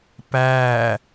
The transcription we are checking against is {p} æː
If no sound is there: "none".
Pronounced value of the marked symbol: p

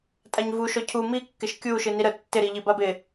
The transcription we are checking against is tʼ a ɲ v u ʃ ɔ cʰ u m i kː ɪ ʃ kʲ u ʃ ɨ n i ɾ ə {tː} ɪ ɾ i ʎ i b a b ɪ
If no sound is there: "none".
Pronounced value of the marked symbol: tː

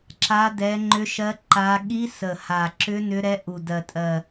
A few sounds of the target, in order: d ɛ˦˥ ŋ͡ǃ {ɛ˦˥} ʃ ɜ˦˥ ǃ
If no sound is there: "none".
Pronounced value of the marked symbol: ʏ˦˥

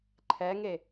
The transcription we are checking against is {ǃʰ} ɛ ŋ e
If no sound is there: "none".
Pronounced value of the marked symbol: ǃʰ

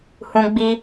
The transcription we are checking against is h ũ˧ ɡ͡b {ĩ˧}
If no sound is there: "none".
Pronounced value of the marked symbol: i˧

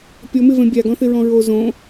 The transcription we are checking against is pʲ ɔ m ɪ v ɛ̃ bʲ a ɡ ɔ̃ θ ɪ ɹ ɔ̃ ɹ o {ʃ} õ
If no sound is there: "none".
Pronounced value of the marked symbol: z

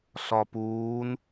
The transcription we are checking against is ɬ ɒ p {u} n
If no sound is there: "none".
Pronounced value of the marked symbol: uː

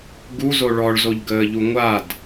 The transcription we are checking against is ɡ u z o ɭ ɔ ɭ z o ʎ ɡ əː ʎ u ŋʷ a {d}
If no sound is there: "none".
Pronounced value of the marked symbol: d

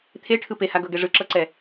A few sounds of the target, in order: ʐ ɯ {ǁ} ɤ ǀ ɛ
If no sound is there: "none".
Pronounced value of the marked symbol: ǁ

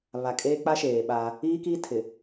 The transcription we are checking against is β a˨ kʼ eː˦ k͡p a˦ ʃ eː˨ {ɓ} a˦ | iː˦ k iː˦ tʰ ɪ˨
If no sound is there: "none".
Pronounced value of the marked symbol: ɓ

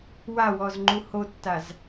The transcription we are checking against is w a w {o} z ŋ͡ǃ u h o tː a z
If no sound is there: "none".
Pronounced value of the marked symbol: ɔ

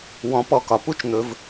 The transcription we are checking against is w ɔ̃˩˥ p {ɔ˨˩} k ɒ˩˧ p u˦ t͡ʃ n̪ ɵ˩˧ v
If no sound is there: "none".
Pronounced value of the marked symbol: ɔ˨˩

